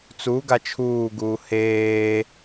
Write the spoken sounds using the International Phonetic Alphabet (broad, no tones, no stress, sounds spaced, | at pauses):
t͡s u ɡ a t͡ʃʰ uː ɡ uː h eː